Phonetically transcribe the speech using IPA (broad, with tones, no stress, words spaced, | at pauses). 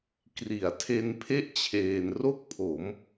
kri˩˦a̯tʰe˧npʰe˥˩ʔ t͡ɕʰeː˧n ro˥˩k̚pʰo˩˦m